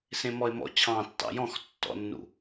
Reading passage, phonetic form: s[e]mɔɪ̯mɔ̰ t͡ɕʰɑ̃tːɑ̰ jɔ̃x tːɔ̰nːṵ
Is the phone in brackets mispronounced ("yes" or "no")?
yes